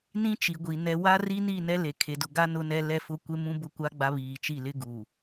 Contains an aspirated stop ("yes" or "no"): yes